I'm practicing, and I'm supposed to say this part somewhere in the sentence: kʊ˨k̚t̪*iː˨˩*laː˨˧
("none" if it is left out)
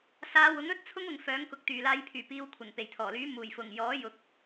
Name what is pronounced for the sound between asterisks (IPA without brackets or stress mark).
yː˨˩